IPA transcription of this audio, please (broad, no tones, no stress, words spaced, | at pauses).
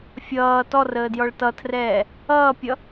fʲʌː tɔrəːdjɔɭ tʌtʰrɛː | ʌːpʲʌ